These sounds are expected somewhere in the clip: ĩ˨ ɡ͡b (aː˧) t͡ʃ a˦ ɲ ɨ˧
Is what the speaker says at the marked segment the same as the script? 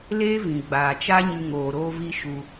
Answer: no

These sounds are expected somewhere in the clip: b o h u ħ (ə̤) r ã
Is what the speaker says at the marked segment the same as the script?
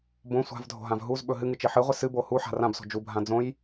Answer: no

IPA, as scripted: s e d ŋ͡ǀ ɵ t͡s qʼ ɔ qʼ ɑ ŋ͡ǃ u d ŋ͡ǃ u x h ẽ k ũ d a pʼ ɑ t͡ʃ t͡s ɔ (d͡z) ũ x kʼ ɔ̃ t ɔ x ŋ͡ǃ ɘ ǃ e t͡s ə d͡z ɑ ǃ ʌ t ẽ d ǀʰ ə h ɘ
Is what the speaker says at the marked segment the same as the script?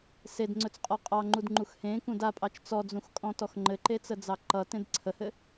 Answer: yes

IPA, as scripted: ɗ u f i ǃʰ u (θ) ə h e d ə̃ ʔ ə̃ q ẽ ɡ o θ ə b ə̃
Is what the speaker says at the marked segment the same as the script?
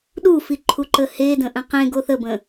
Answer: no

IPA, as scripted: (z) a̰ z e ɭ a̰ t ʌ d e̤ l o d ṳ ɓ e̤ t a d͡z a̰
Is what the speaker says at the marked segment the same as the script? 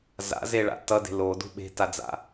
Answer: yes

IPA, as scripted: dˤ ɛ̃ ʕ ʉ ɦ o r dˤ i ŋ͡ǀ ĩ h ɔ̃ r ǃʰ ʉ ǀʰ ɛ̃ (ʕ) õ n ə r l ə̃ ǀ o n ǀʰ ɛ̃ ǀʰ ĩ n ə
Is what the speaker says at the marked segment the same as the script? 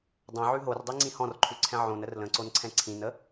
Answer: yes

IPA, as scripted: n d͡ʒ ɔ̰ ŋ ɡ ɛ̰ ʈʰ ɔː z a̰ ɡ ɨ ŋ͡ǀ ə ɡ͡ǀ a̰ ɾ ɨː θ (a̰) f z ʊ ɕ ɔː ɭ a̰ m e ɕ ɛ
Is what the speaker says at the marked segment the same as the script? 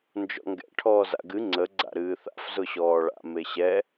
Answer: yes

